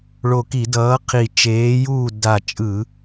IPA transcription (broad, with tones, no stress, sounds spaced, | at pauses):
ɭ o˧˩ k i˧˩˧ d ʌː˨˥ qʰ i˧˩ t͡ʃ eː˨˥ j uː˥˨ d a˧˩ t͡ʃʼ ɯ˧˩˧